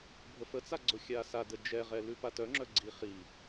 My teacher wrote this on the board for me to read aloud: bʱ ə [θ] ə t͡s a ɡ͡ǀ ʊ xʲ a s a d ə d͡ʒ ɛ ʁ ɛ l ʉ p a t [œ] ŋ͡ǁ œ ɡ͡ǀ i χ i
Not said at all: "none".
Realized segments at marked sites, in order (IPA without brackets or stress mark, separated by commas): f, œ